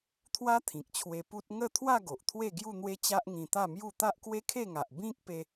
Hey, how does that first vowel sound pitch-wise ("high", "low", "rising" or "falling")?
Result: high